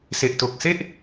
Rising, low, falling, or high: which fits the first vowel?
low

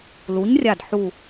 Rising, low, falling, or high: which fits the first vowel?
rising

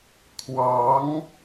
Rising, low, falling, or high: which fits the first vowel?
rising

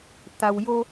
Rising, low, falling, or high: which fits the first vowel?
low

